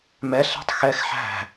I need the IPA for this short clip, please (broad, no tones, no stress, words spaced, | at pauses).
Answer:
mɛɬ ɛ̤tˤxɛx ħæ̤